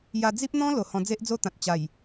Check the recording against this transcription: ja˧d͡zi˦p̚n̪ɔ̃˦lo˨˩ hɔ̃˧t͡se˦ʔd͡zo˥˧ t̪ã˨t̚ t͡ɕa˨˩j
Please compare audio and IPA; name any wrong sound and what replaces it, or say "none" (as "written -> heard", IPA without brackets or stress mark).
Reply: t͡s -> d͡z